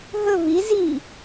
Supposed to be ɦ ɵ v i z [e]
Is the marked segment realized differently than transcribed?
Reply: yes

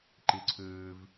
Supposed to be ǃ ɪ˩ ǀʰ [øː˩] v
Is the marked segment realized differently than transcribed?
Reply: no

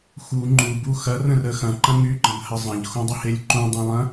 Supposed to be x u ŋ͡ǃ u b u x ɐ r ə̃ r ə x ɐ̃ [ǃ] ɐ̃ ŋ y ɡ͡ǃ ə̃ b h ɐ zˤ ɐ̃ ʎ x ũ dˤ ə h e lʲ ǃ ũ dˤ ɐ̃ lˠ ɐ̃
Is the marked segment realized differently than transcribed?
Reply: no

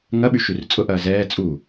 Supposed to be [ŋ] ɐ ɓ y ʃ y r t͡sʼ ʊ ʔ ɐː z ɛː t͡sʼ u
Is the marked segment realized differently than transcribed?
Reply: no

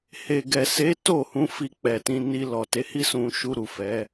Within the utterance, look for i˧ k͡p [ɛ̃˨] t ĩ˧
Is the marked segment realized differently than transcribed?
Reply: yes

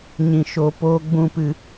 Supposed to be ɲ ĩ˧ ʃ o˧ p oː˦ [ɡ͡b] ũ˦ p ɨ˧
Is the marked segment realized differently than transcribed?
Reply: no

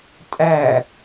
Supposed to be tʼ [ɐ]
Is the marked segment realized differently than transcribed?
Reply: yes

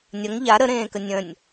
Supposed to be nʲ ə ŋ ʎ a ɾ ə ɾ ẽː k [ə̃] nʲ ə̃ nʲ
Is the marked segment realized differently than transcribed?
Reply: yes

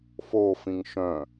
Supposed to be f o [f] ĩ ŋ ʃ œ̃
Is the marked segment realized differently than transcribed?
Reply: no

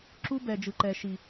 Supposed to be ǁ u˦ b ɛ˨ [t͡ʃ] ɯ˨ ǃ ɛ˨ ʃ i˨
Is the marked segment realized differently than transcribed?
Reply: yes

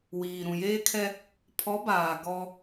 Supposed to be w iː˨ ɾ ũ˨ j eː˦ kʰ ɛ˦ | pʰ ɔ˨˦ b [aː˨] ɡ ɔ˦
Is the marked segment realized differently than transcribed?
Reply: no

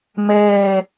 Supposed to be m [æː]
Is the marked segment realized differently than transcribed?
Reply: yes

